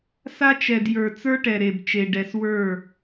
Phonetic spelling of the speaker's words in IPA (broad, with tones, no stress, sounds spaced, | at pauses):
s a˦ t͡ʃ ɛ˨ d j ə˞˨ t͡s ə˞˦ ʈ ɛ˨ ɾ e˨ b t͡ʃ e˨ ɖ ɛ˨ s w ə˞˦˨